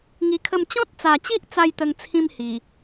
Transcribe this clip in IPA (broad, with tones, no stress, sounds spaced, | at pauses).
ŋ i˧ kʰ ə˥˧ m t͡ɕ ɔ̃˦ t̚ t͡s a˨˩ t͡ɕ i˦ ʔ t͡s a˥˧ j t̪ ə˧ ŋ t͡sʰ ĩ˦ m h i˨˩